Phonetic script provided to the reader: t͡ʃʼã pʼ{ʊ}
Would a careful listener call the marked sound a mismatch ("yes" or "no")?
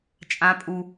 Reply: yes